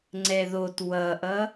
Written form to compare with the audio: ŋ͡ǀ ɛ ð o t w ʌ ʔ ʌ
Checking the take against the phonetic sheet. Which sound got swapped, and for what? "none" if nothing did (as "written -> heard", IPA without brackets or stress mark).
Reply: none